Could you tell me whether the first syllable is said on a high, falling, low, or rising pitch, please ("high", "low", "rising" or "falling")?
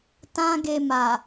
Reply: high